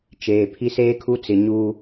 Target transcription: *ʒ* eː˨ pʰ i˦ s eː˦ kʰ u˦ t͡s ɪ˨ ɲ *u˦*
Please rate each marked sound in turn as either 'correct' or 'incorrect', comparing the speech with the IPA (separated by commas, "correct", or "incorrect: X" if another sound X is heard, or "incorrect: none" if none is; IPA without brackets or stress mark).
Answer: incorrect: t͡ʃ, incorrect: uː˦